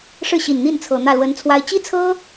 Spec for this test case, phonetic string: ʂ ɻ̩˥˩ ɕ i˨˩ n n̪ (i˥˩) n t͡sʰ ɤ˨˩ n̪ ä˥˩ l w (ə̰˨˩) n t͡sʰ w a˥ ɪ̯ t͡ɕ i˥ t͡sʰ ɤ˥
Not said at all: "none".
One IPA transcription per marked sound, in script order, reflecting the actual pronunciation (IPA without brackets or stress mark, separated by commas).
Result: i˥˩, ə˧˥